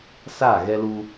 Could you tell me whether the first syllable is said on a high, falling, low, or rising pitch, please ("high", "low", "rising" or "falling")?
falling